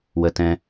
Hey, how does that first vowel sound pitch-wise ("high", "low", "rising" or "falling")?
high